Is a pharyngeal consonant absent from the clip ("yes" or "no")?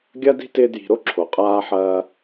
no